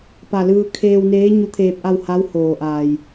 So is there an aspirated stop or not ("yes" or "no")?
yes